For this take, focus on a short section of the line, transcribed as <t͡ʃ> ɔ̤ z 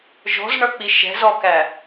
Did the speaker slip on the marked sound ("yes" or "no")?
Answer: yes